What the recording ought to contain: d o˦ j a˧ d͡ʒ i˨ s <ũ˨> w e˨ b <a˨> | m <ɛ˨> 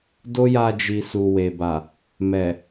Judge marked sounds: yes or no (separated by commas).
no, yes, yes